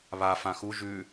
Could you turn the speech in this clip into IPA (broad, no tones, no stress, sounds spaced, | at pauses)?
β a f ã x u ʒ ʉ